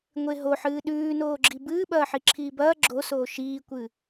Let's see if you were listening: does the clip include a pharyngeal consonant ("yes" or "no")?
yes